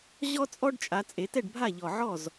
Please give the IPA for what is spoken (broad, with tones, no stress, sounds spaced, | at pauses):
ʑ ɔ˦ t͡sʼ ɔ˦ ɖ t͡ʃʼ a˩˧ t͡sʼ e˩˧ t ɛ˥˩ ɖ bʱ a˥˩ ʎ ɔ˨˩ ʕ ɔ˥˩ z